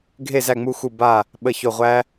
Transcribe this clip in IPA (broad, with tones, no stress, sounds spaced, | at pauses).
ɡʱ e˦˨ z æ˦˨ ŋ͡m u˦˨ x u˦˨ b a˦˨ | ɓ ə˦˨ ç o˦˨ ʁʷ æ˥